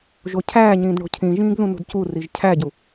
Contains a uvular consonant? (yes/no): no